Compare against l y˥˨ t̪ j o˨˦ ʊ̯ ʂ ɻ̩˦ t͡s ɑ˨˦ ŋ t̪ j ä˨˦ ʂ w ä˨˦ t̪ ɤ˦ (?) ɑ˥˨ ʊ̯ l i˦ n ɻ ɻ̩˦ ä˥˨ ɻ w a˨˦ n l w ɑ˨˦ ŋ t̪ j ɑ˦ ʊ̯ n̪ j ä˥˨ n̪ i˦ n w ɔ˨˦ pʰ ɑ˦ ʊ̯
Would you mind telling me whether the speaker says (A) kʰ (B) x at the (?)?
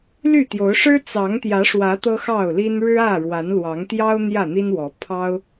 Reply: B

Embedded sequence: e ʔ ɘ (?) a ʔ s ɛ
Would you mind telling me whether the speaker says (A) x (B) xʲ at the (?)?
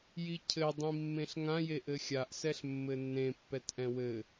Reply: B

